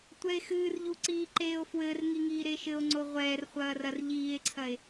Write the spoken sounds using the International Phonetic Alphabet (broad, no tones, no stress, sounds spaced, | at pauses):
tʷ ɛ e̯ x ɨː r ʎ u ǀ iː ǃ eː o̯ f w ɘː r ŋ i ŋ iː ɾ e ʃ ɘ o̯ ŋ͡ǀ o ʁʷ ɛː r χʷ ɐː r ɐ r ʎ iː e̯ ǀʰ ɐ e̯